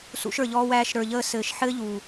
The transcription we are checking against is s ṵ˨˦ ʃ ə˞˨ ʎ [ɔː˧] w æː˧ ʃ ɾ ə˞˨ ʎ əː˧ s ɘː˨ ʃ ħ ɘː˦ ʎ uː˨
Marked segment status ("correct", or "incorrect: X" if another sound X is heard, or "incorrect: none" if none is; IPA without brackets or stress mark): correct